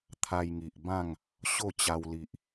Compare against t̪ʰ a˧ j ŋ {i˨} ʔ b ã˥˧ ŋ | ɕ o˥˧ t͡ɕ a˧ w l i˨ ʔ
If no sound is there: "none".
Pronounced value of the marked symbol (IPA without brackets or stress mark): i˨